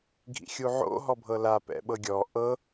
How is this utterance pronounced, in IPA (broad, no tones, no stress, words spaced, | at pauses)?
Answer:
ɡʱḭxʲuʕo̰ ɦɔbʱɤla pɛ̰ɓɤɡʲɔ ʔɤ